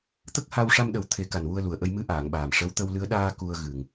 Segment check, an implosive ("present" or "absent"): present